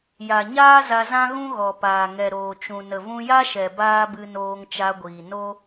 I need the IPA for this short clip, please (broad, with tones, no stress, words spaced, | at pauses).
ja˨ɲaː˦za˧ zã˦ɣũ˦ɣɔ˨paː˨ ŋɛ˨ɾoː˨t͡ʃũ˨ nə˨vũ˧ja˦ʃɛ˨ baː˦bɨ˧noː˧ŋ t͡ʃa˧ɡʷiː˨ no˦